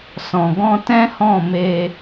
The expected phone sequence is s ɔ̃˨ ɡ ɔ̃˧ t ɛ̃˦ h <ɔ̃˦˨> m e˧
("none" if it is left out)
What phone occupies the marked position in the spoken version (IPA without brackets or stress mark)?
ɔ̃˦˨